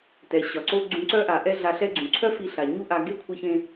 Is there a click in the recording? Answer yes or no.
yes